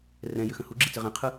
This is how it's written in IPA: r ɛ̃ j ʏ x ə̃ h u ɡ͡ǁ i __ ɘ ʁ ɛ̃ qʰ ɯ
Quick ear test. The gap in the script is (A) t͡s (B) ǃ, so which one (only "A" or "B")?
A